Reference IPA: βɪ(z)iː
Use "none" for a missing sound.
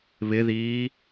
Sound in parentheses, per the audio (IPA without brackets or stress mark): ð